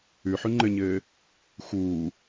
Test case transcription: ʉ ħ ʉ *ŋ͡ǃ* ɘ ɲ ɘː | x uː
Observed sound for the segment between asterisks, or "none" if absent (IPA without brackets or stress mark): ŋ͡ǃ